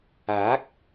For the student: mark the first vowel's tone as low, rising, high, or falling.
rising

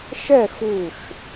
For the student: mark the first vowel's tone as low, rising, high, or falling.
falling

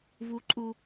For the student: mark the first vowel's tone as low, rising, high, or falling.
high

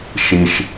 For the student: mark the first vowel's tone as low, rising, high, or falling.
low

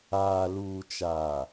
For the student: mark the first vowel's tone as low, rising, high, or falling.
low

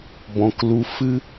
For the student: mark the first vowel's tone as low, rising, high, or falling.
low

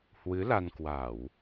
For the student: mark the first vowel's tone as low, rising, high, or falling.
rising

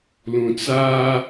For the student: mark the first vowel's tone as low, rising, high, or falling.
low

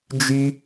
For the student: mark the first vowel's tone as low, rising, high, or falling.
high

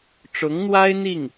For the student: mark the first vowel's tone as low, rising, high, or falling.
rising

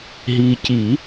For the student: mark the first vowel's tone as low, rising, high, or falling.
low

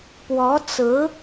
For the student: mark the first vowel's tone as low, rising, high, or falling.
rising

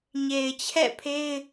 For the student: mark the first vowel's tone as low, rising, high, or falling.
low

